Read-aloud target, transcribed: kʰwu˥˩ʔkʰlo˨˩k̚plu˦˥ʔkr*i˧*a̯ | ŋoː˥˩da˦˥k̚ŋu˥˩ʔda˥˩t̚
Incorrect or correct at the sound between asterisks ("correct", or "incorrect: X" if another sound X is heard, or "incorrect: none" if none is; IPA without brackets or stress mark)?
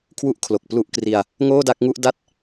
correct